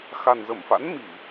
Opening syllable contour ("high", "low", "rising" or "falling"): low